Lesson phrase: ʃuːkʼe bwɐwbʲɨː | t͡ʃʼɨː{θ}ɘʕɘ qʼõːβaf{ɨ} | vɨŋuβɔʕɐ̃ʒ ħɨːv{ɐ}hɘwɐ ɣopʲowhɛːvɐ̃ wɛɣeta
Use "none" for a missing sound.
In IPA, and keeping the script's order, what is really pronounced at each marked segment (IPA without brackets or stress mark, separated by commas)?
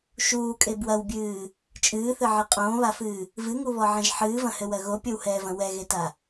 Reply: θ, ɨː, ɐ̃